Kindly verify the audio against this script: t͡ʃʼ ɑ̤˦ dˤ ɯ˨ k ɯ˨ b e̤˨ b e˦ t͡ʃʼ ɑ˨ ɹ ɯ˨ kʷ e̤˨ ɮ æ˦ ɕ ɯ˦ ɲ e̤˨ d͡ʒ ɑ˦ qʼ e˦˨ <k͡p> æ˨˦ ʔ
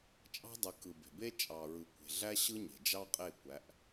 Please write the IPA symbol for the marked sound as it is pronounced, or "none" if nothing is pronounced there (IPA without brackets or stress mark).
kʷ